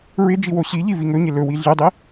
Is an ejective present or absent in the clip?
absent